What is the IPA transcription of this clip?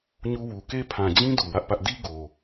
ɲ u˦ w u˨ k e˦ pʰ ã˨ d͡ʑ ĩ˦ d u˨ w ä˦ ʔ p ä˦ ʔ d i˦ ɡ o˨

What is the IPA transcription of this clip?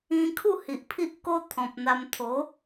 ĩ˧ kʰ u˥˧ h i˨ ʔ pʰ i˦ ʔ k o˦ t̪ʰ ɔ̃˨ p̚ n̪ a˧ m t̪ʰ o˨˦

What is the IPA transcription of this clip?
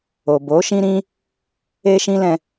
o˨ b o˨˦ ʃ ĩ˦ ɾ ĩ˦ | e˦ ʃ ĩ˦ l ɛ̃˧

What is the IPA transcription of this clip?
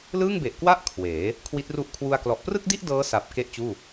l ɯː˥˩ ŋ b e˨˩ ʔ k w a˥˩ ʔ kʰ w eː˩˦ | kʰ w i˦˥ t̚ r u˥˩ ʔ kʰ w u˧ a̯ k l ɔ˨˩ ʔ p r ɯ˥˩ k̚ d i˥˩ ʔ d ɤː˦˥ s a˨˩ p̚ k e˥˩ ʔ t͡ɕ uː˥˩

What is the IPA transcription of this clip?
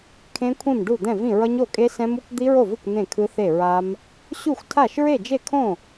kʰ ẽ˦˥ kʷʰ ĩ˥˩ m ɖ u˥˩ d̪ ɛ̃˥˩ v ĩ˥˩ ɹ ʌ˦˥ ɲ o˥˩ kʼ e˦˥ s ɛ̃˦˥ m u˦˥ kʷ d̪ i˦˥ ɹ o˥˩ v ɯ˥˩ kʷ n̪ ẽ˥˩ kʰ ɯ˦˥ θ e˥˩ ɹ a˦˥ m | ɕ u˥˩ xʷ tʰ a˥˩ ʃ ɹ e˥˩ d͡ʒ e˥˩ kʰ õ˥˩

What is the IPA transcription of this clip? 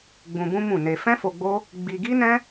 ɡ͡b ũ˧ b ũ˦ m ũ˦˨ n e˧ f ɛ̃˦ f o˧ ɡ͡b o˦ | ɡ͡b i˧ ɡ i˦ n ɛ̃˦

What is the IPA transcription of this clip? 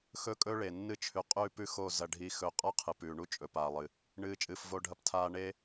x ɵ˦ kʼ ɵ˦ ɭ e˨ nː ɨ˧ t͡ʃʰ ʉ˨ qʼ ʉː˧ p ʉ˦ x o˦˨ z ɐ˧ ɖʱ i˧ x ɵ˧ qʼ a˦ qʰ ɨ˨ p ʉː˨ ɳ u˦ t͡ʃʼ ɵ˨ p aː˨ lˠ ɨ˨ | ɳ ɨː˧ t͡ʃʼ ɨː˨ f v o˧ ɖʱ ɐ˧ p tʰ aː˧ ɳ e˦

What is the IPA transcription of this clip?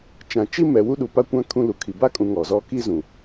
t͡ʃ ã˨ t͡ʃ i˦ m ɛ˨ w u˦ ɗ u˨ p a˦ kʷ ã˦ kʰ ũ˦ l u˨ kʰ i˨ b a˦ kʼ ũ˨ ŋ ɔ˨ z ɔ˦ k i˦ z ũ˨

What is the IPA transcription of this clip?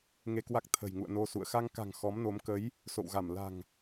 ŋ e˧ k w a˦˥ k̚ t̪ʰ ə̤˨˩ j ŋ ṵ˧˨ ə̯ n o˧ s ṵ˧˨ ə̯ x a˧ ŋ k a̤˨˩ ŋ x ɔ˨˦ m n o˨˦ m k ə˨˦ j | s o̰˧˨ w ɣ a˧˩ m l a̤˨˩ ŋ

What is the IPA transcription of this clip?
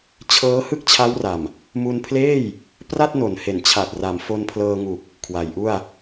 t͡ɕʰ ɤː˦˥ h ɯ˥˩ k̚ t͡ɕʰ a˦˥ w r a˨˩ m | m u˧ n pʰ l eː˥˩ j | p r a˥˩ t̚ n o˨˩ n h e˨˩ n t͡ɕʰ a˨˩ t̚ r a˩˦ m f o˧ n pʰ l ɤː˧ ŋ u˨˩ k̚ | kʰ w a˩˦ j ʔ u˥˩ a̯

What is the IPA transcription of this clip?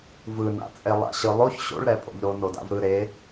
v ɯ n a̰ t͡sʼ e lˠ a̰ ɕ ɯ lˠ o ç ɕ o̰ ɭ ɾ ɛ pʼ o̰ ʎ ɾ o n o d a̰ v ɾ ɯ ɾ e

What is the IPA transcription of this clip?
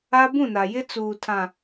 a˦ b ũ˦˨ n a˨ j ɪ˦ t͡s uː˨ tʰ ã˨

